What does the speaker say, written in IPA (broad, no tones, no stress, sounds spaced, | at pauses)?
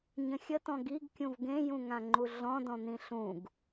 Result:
ɲ ə̃ xʲ ə t ɔ̃ ɡ i ɡ kʲ ũ v ɡ ẽ j ũ ŋ ã ŋ͡ǃ u ɮ ɔ̃ d ɔ̃ n̪ ĩ ɬ ũ ɡ